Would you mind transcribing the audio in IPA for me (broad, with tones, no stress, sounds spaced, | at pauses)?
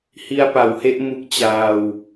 h i˧ a̯ p a˩˦ w h e˦˥ ʔ m u˦˥ k̚ t͡ɕ aː˧ w